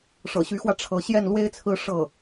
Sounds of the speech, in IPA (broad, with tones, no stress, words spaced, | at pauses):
ʂɤ̰˨˩ɕy˧˥xwä˧ ʈ͡ʂʰɤ˧˥ ɕjɛ˥˩nlwe˥ɪ̯t͡sʰɹ̩˥˧ ʂɤ˥˩